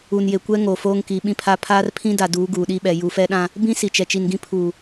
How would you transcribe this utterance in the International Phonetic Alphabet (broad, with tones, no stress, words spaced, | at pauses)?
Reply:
u˨nje˨kʷɛ˦ ŋoː˨foː˦ŋki˨˦ ɓĩ˦pʰa˦ pʰaː˦rpʰĩ˦da˨duː˨˦ ɡuː˨ɗi˦ɓɛ˨ ju˨fɛ˦ɗã˦ | bĩ˦ si˨t͡ʃɛ˨ t͡ʃi˨nɡĩ˦ pʰuː˨